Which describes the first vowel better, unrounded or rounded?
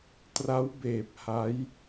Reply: unrounded